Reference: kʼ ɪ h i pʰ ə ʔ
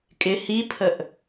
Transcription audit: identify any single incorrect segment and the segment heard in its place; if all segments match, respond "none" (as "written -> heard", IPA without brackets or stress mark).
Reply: none